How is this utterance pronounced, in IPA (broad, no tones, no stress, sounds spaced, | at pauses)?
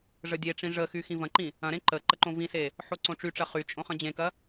ʐ ə dʲ e ʈ͡ʂ ĩ ʐ ə x y x ĩ v ɐ̃ ǃ ĩ | ɐ̃ ɾ ẽ ǃ ə ǃ ɐ ǃ õ v ĩ s e | ħ o ǀ õ ʈ͡ʂ y ʈ͡ʂ ɐ χ y t͡ʃʼ õ χ ə̃ d͡ʑ ẽ k ɐ